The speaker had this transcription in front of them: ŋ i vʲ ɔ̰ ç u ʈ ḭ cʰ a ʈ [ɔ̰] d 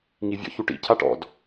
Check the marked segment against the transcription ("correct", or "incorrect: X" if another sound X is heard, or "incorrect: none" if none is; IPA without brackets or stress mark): correct